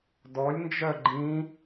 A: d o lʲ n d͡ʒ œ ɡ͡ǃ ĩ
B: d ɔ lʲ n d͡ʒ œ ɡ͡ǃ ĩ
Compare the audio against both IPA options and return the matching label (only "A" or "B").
B